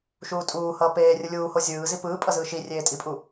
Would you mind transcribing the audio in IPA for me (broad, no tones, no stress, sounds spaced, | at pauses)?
ʃ uː tʼ uː h ʌː p eː rʲ ɯ lʲ uː h o zʲ ɯː z i p ɯː pʼ ʌ z ɯː ʃ i rʲ eː tʼ i pʼ u